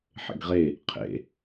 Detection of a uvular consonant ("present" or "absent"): present